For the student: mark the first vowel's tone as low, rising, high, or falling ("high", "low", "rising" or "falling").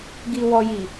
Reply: low